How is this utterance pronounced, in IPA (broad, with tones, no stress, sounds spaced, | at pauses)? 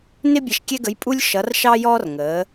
n ɪ˥ bʲ ɛ˧ ʃ kʲ ɛ˥ ɡ ə˧˥ j pʼ u˥ lʲ ʃ ʌ˧˥ r ʃ ɑ˥ j ɔː˥ r ŋ əː˩˧